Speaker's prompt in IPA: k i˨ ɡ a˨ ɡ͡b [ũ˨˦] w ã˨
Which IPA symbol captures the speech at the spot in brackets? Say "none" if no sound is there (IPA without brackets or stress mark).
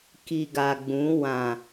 ũ˨˦